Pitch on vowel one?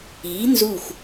rising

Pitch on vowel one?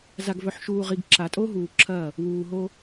low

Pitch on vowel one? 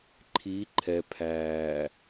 rising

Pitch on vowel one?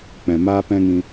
low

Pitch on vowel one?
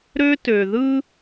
high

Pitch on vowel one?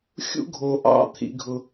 high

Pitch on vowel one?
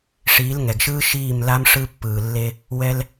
rising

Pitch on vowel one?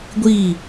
falling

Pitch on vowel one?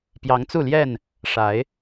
rising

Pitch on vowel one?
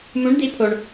rising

